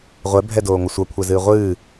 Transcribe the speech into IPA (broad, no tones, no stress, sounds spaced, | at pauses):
ʁʷ ɛ bʱ ɛ d oː ŋʷ ʌ sʷ ʌ kʷʰ ɛ z ɨː ʁʷ ɨː